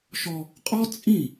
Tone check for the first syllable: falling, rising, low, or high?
high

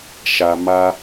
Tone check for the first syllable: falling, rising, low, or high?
low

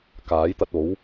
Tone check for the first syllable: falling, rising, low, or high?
rising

